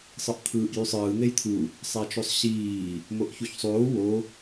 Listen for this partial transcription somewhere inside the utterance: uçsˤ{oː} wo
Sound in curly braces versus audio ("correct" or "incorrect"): correct